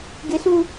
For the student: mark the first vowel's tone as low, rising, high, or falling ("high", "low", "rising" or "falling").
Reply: high